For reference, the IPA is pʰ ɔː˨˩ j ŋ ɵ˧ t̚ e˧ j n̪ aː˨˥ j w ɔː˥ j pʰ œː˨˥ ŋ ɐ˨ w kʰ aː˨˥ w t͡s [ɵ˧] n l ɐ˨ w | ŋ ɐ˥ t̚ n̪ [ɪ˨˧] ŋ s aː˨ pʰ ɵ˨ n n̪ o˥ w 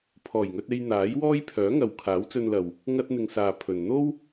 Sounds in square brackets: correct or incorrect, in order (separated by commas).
correct, incorrect